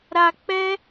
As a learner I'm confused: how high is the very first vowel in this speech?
low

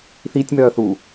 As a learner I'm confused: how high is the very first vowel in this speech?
high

